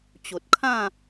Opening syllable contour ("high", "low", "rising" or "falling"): low